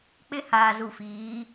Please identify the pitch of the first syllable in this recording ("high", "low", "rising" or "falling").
high